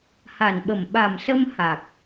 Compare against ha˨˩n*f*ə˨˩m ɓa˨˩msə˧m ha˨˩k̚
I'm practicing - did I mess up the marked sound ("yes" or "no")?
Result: yes